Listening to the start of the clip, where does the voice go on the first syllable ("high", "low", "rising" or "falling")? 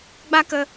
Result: high